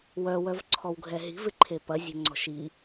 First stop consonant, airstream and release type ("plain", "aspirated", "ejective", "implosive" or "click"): click